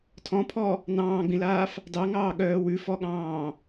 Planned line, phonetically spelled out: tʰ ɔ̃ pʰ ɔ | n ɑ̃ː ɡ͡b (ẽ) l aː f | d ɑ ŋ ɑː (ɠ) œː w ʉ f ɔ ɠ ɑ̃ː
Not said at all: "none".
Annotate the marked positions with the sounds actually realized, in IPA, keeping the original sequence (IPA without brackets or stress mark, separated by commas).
ĩ, ɠ